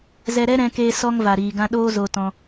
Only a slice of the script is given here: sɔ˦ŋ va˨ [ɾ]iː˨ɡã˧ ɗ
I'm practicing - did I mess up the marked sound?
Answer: no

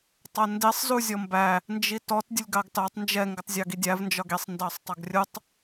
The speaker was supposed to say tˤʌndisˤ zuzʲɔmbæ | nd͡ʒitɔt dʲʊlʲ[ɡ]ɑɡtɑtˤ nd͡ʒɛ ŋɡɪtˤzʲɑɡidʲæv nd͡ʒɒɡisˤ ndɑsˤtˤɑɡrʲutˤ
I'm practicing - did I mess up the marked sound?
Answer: no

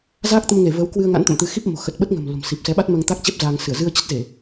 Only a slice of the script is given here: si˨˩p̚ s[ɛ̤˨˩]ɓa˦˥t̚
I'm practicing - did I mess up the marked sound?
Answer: yes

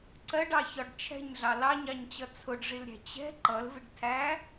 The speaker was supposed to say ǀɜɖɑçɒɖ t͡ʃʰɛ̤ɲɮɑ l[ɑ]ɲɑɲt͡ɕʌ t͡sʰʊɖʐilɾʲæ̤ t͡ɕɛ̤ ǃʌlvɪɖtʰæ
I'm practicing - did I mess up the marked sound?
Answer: no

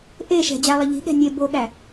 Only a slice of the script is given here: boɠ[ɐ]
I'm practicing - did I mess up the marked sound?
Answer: yes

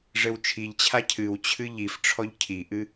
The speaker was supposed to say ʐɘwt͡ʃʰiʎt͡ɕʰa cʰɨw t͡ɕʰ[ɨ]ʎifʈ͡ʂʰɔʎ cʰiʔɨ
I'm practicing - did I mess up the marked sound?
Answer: no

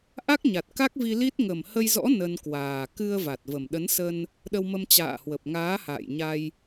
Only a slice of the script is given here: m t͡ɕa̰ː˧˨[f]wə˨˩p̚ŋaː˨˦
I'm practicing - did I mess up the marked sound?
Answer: yes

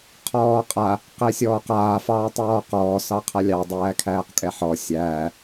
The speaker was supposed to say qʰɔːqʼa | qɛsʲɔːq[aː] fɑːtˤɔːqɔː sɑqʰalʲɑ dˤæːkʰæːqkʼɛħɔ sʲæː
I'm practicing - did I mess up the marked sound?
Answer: no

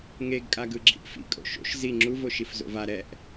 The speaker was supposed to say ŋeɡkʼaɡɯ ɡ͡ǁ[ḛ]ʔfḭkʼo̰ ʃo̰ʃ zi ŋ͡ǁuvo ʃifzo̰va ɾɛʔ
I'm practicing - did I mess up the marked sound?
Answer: yes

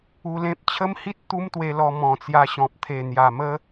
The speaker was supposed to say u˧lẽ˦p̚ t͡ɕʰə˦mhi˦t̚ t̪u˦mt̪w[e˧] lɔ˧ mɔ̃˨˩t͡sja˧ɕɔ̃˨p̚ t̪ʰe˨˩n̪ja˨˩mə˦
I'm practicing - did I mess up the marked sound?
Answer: no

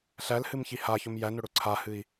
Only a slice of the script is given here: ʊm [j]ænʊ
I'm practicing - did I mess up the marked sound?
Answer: no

